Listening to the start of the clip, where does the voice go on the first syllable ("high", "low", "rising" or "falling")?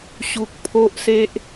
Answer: low